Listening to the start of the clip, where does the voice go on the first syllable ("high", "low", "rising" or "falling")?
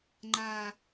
low